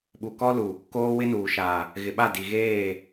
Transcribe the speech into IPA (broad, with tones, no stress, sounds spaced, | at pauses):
ɓ u˨ k ɔ˦ l u˨ | k oː˦ w ɪ˦ n uː˨ ʃ a˨ | ɣ ɪ˨ ɓ a˦˨ d i˨ ɣ eː˦˨